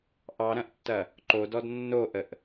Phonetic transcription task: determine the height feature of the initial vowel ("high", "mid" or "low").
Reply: low